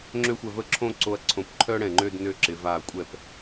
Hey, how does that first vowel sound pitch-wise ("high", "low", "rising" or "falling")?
falling